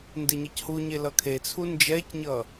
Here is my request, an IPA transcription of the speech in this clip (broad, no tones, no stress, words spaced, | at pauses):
ndeɲʌchuɲe lʌkʰet͡sʰu nd͡ʒɛcɲʌ